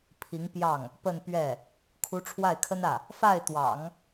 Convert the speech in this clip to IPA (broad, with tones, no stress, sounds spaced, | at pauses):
pʰ i˧˥ ŋ p j ɑ˥˩ ŋ | p ə˥˧ n p ɥ ɛ˥˩ | kʰ u˧˥ ʈ͡ʂʰ w a˥˩ ɪ̯ kʰ ə˥ n ä˥˩ | f a˥˩ ɪ̯ t̪ w ɑ̰˨˩˦ ŋ